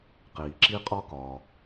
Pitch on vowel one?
low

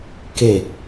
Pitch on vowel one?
low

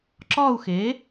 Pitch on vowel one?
falling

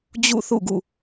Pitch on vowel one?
falling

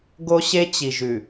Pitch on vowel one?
high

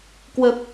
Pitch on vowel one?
low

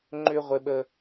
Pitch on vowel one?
low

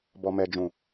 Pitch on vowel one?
low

